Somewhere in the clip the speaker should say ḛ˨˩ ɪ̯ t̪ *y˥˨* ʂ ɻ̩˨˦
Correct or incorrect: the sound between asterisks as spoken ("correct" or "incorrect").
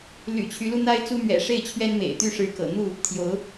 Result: correct